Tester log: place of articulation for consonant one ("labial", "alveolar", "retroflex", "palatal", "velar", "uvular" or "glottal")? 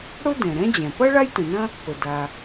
retroflex